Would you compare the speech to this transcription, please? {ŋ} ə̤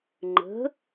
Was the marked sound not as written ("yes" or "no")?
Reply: yes